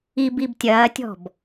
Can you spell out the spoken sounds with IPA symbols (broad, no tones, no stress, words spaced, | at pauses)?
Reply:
ibib tʲɐːtʲɔ̤b